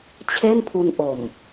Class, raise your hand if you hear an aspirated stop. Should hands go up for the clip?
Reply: yes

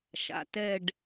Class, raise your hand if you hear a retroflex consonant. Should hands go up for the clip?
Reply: yes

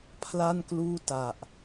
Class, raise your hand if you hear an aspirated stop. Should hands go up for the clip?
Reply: yes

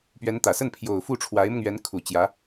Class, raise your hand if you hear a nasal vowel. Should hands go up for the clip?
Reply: no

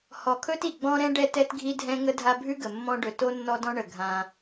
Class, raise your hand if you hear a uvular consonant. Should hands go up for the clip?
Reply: no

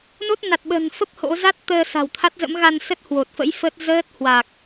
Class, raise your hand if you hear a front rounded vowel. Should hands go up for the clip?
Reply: no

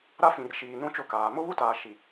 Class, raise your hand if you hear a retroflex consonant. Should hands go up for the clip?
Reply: no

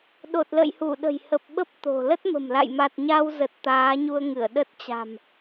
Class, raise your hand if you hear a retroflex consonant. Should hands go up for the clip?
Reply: no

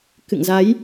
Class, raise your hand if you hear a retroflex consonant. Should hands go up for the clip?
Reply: no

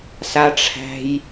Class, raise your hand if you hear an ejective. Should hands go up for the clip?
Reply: no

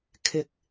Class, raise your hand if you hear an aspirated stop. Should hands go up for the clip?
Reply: yes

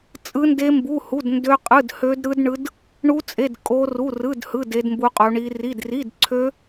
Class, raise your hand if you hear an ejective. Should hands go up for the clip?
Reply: yes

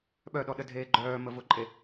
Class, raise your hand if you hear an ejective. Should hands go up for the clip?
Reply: yes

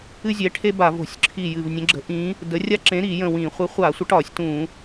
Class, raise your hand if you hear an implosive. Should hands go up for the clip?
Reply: no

